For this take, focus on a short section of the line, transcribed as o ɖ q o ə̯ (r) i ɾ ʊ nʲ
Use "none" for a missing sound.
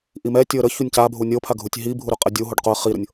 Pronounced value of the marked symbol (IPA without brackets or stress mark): χ